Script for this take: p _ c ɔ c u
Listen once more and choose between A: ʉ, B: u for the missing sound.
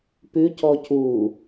A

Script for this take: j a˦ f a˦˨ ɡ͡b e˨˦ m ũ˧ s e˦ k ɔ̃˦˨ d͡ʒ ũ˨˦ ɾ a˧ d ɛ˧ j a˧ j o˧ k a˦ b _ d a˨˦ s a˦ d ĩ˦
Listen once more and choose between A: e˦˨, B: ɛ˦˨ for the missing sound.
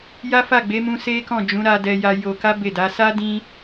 A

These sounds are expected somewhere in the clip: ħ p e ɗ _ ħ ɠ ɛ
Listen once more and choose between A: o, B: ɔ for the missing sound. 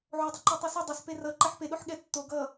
A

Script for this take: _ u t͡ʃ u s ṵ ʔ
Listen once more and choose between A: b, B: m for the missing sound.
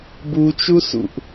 A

